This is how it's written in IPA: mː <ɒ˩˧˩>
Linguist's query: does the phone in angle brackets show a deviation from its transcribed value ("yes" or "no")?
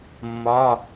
no